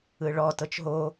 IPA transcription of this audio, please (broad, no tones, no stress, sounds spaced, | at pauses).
ɯ ɭ ɔ t ɤ t͡ʃ ɦ o